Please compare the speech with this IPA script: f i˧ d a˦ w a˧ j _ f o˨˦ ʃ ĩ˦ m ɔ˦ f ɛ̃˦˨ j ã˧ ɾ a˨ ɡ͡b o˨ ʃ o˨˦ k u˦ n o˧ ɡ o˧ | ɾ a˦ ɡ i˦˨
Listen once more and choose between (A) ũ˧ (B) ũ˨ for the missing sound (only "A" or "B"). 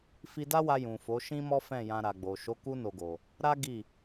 B